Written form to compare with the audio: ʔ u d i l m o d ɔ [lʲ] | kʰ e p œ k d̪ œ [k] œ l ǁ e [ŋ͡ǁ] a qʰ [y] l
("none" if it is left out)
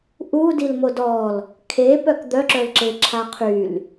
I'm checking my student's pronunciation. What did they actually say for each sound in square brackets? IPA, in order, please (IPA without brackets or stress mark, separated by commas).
l, ǁ, ǁʰ, y